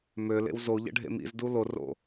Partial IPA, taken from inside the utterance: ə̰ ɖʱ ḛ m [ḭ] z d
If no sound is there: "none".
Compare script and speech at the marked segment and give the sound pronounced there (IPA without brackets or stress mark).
ḭ